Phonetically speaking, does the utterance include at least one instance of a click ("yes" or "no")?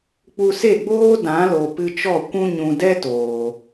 no